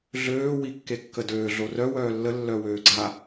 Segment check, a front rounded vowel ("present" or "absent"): present